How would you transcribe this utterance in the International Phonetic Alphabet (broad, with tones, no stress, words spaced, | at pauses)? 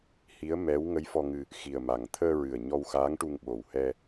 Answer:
hi˧˥ə̯ mɛ˧˥w ŋə˧˥jfɔ˧ŋɨ˧ | xi˨˩ə̯ma˨˩ŋ t̪ʰəː˧ɹɨ˨˩ə̯ ɲɔ˧wxaː˧˥ŋʈu˧ŋ ɓo˨˩whɛ˧